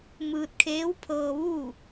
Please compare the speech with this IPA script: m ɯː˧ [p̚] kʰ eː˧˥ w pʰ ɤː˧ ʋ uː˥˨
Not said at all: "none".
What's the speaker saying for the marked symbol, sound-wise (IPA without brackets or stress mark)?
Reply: t̚